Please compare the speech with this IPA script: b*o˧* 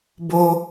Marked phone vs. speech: correct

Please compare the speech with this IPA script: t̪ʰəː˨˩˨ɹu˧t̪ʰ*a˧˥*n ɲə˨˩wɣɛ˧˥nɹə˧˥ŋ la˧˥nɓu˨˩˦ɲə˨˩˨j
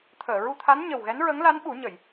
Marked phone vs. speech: correct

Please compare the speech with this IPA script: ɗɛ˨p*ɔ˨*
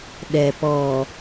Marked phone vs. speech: correct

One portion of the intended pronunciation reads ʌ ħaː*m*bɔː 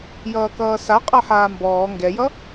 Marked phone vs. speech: correct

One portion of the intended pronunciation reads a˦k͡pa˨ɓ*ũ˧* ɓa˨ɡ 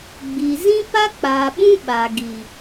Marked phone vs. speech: incorrect: ũ˦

